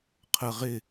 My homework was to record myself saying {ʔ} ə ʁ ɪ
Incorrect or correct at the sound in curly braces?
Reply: incorrect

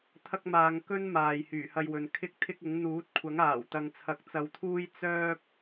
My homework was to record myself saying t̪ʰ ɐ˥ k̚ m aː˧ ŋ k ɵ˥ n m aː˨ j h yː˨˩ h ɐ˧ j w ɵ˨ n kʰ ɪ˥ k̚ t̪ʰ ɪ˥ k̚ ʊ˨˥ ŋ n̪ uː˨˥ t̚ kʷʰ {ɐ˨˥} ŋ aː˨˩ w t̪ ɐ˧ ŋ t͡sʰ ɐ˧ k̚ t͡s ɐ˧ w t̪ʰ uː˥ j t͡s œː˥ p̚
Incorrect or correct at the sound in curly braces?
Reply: correct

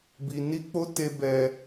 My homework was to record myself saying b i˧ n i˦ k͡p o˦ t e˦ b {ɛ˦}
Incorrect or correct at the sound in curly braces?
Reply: correct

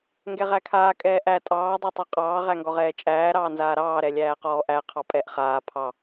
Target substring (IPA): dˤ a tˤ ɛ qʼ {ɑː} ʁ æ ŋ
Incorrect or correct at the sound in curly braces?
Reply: correct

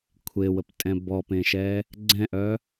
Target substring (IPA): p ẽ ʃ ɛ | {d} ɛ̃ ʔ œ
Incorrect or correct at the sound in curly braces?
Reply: incorrect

